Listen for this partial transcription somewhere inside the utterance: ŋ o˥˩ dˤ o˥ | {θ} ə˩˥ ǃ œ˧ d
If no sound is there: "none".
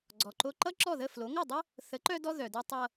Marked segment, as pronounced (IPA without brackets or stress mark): θ